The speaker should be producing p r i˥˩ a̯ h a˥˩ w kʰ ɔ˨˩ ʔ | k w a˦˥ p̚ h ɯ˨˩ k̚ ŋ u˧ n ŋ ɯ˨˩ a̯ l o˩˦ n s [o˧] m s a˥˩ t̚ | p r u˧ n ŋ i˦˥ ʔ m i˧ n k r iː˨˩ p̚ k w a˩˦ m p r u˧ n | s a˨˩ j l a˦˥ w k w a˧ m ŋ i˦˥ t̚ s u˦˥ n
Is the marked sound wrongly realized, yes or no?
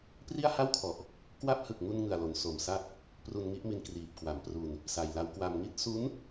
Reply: yes